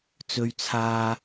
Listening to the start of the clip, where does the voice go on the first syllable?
low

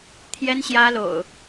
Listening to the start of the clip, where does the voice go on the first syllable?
high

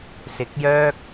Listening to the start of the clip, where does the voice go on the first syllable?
rising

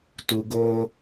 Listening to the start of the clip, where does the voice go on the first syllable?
low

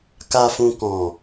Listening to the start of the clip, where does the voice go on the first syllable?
low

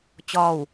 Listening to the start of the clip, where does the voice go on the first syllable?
falling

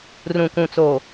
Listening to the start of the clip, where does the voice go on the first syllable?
low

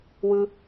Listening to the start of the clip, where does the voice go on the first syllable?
high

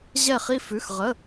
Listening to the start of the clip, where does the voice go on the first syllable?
falling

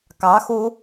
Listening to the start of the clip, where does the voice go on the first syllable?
rising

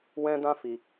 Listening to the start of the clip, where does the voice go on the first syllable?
high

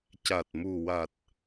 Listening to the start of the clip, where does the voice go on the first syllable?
low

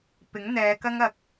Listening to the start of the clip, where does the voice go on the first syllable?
rising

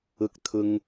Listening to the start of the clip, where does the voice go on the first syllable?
high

